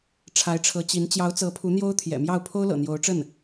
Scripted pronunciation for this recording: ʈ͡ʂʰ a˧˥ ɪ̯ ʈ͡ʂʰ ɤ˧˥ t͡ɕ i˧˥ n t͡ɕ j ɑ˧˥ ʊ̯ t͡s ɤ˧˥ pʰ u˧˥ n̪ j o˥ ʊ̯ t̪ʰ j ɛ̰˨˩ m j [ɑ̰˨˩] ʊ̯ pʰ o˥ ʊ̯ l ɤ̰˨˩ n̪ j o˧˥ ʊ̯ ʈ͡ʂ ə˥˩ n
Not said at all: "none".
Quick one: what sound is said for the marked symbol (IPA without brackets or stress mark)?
ɑ˥˩